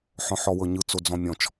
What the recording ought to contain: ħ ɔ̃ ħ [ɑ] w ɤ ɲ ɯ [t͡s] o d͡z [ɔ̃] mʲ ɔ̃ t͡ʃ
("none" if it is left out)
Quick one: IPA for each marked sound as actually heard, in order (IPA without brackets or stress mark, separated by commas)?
ɔ, t͡s, ɔ̃